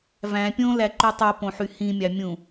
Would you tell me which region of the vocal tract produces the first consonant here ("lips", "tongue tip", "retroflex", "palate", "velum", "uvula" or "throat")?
lips